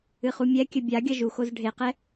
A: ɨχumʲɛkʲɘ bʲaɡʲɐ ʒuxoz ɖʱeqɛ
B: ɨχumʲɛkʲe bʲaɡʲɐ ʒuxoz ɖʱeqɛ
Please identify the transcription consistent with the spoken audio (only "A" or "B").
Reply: A